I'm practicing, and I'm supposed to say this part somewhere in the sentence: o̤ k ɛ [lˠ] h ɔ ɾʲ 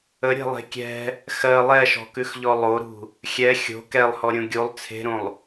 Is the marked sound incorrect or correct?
correct